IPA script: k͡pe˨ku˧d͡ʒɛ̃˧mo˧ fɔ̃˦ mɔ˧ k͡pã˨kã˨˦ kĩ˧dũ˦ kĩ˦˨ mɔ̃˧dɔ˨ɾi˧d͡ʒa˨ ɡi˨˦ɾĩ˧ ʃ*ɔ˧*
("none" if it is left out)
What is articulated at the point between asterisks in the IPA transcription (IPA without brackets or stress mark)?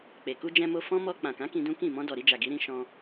ɔ̃˧